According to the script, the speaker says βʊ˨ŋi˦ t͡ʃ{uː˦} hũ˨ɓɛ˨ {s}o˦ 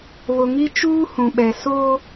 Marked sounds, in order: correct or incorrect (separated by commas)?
correct, correct